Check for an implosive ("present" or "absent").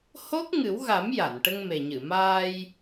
absent